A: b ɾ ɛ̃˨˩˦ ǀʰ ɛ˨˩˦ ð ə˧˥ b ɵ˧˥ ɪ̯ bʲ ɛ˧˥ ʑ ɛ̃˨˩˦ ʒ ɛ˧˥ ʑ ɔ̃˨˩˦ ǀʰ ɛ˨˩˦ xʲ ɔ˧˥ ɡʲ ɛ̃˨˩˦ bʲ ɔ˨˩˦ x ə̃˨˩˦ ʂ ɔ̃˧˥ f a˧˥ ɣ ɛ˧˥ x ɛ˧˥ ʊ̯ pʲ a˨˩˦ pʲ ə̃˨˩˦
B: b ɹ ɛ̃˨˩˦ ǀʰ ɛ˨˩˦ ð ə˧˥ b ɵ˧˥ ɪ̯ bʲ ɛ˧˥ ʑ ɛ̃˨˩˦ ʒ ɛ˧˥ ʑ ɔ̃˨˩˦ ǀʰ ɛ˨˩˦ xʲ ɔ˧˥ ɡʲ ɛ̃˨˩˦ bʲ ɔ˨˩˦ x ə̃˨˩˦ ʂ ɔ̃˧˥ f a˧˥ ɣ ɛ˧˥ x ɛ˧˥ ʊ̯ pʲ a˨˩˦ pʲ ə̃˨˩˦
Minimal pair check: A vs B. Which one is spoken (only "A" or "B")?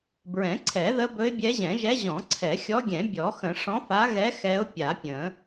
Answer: B